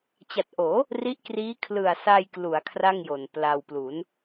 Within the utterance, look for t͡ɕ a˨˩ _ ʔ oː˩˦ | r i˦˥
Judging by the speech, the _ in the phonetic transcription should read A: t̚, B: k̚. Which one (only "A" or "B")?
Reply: A